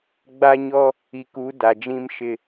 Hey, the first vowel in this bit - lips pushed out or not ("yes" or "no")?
no